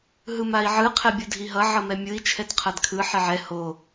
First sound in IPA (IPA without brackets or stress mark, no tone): ɦ